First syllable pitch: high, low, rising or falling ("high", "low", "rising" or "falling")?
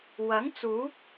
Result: rising